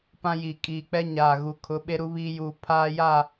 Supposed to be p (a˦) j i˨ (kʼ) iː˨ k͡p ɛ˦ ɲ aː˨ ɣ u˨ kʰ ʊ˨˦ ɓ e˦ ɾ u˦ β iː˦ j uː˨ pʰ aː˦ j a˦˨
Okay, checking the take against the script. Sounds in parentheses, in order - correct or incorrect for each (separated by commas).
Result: incorrect, correct